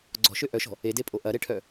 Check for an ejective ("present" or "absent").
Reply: present